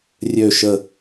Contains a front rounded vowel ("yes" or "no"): yes